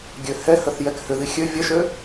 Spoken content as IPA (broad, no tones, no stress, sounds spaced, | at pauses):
ɡʲ ø h ɛ h ə θ j ɛ k h ʏ ð i xʲ ø vʲ ɐ ʃ ø